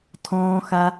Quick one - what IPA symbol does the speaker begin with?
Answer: tʰ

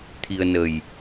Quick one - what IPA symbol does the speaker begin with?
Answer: t̪ʰ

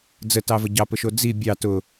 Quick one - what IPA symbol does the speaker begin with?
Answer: d͡z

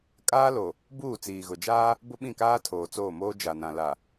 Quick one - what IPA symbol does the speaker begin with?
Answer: kʼ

